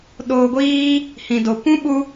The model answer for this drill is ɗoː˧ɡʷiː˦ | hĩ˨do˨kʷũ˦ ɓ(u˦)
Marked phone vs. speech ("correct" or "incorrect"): incorrect